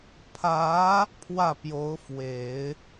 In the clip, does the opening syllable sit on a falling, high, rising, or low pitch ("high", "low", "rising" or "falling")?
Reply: rising